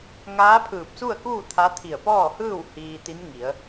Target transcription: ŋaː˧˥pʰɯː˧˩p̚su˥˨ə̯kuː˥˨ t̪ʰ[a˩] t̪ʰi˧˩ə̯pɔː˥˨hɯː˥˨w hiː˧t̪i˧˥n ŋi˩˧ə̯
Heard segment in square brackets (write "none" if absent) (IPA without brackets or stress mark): a˧˥